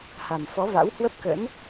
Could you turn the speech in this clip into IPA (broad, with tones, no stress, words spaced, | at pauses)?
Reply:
ha˨˩mfɔ˨˦va̰˧˥w hwə˦˥p̚kə̰˧˥n